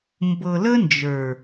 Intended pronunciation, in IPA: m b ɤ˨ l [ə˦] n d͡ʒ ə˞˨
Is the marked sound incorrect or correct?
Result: correct